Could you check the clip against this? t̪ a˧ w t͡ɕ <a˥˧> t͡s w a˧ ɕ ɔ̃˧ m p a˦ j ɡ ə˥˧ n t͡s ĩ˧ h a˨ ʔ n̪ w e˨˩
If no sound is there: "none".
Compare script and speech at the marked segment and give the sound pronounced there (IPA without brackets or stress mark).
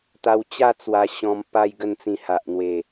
a˥˧